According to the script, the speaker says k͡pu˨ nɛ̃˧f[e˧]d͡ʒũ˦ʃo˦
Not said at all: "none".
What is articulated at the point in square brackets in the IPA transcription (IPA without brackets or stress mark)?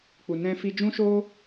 i˧